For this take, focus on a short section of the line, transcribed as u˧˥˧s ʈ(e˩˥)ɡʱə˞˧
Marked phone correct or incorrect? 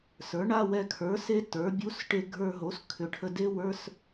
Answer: incorrect